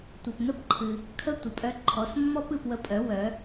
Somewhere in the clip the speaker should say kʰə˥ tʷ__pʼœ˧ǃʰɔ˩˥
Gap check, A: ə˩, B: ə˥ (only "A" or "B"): A